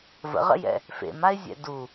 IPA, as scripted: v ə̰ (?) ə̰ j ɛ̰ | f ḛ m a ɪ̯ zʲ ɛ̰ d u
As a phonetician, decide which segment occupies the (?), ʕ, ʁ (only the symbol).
ʁ